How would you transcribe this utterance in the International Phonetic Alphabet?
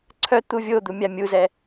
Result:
ǀʰ œ t̪ u vʲ o d̪ u mʲ a mʲ u z ɛ

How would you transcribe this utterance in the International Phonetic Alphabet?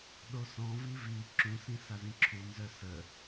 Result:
ɗ o s ɔ̃ v i v i ǁ ũ s ĩ s a z ĩ ǁʰ u n z œ s ə

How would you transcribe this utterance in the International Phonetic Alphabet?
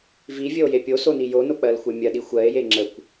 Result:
v i vʲ ə o̯ j e pʲ o s o n i j o n o k͡p ɜ l xʷ e mʲ ɜ ɗ i xʷ ɜ e̯ j e ŋ͡ǁ ə kʷ

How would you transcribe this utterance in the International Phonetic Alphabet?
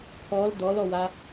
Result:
kʰ ɔ l d ɔ l ɔ w a

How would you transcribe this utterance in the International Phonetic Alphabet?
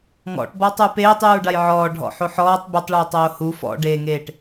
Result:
ŋ ɔ̰ ʈ b ɔ tˤ u p eː tˤ j uː ɖ a j ʕ ɔː ɖʱ ɔ̰ ħ o ħ ɔː tˤ b e tˤ ɭ uː tˤ oː h u f ɔ̰ ɖ eː ŋ eː ʈ

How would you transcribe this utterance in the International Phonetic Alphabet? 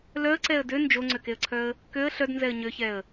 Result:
l œ ə̯ ǀ ɛ ə̯ d ø n d͡ʒ o ŋ͡ǀ ø k e ə̯ ǀʰ œ ə̯ | k ø ə̯ ɬ œ d n z ɛ ə̯ ɲ ø ç ɛ ə̯

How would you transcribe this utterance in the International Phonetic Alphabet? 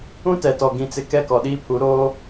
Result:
ũ˦ t ɛ˨ t ɔ˨ ɡ ĩ˨ t͡s ɪ˨ k ɛ˦˨ k ɔ˨ ɗ iː˦ pʰ u˨˦ ɾ oː˦

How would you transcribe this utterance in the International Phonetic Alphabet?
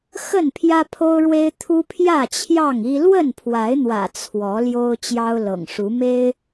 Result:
x ə˥˨ n pʰ j ä˦ pʰ o˦ ʊ̯ ɻ w e˦ ɪ̯ t̪ʰ u˦ pʰ j ä˥˨ t͡ɕʰ j ɑ˥˨ ŋ i˦ l w ə˥˨ n pʰ w a˨˦ ɪ̯ n̪ w ä̰˨˩ t͡sʰ w ɔ˨˦ l j o˦ ʊ̯ t͡ɕ j ɑ˦ ʊ̯ l ɤ̰˨˩ ŋ ʂ u˨˦ m e˦ ɪ̯

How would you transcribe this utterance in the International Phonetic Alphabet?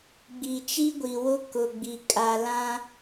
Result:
ɡ͡b i˨ t͡ʃ i˦ ɡʷ i˨ w ʊ˦ k ʊ˨ ɡ͡b i˨ kʼ a˨ l ã˦

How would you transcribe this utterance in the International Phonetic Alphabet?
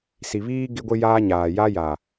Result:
s i˨ β iː˦ ɡ ɪ˦ ɡʷ ɪ˦ j aː˦ ɲ aː˨ j a˦ j a˨

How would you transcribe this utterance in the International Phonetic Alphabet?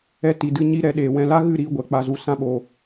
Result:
ɛ˧ t i˨ d ɨ˧ ɲ i˧ ɾ ɛ˧ ɗ eː˨ w ɛ̃˧ l a˦ ɣ ɨ˦˨ ɾ iː˧ ɡʷ ɛ˨ k͡p a˧ z u˧ s ã˦ ɓ oː˧

